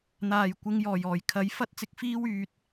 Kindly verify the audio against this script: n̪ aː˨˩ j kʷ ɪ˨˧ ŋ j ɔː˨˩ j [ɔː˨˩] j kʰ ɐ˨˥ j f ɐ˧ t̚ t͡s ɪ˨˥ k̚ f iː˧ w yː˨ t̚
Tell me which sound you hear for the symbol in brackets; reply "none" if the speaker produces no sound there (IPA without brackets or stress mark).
ɔː˨˩